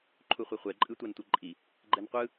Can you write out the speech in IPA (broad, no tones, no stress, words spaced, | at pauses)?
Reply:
ǃʰuχʷeχʷɛ ǃʼɯtʷantʷɯǃʼi | ɡ͡ǃɛnqʷɯ